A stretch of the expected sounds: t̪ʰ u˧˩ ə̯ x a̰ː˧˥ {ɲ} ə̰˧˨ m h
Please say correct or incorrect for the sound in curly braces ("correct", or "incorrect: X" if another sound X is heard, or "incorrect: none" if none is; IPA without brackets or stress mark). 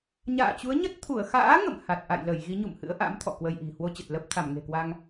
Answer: incorrect: ŋ